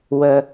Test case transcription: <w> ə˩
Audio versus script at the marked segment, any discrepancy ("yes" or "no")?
no